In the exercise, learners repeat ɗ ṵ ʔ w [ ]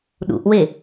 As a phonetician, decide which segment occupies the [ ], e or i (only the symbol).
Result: e